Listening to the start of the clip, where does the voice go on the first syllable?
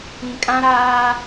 low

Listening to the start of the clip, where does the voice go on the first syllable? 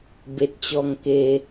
low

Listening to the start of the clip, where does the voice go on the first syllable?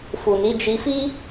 low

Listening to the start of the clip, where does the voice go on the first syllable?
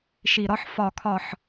low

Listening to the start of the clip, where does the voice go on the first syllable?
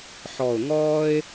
low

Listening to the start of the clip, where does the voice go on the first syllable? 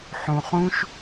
low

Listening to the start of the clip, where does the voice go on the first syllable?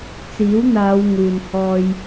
rising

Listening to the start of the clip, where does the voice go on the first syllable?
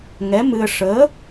rising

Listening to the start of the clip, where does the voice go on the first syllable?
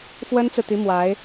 high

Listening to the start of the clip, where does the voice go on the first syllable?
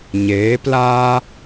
rising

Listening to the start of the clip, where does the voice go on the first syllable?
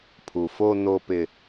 low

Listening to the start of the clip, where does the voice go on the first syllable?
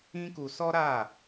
high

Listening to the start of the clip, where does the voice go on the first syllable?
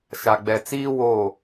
low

